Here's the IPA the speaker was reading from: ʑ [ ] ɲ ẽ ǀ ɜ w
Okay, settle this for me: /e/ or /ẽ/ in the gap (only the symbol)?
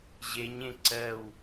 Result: e